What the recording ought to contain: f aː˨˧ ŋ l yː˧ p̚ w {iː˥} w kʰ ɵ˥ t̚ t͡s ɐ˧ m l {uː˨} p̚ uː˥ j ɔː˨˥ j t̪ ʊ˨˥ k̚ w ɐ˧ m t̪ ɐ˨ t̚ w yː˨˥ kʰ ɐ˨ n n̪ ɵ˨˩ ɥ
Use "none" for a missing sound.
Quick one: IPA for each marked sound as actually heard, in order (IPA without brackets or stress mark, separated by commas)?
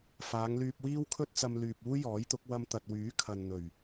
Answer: iː˥, yː˨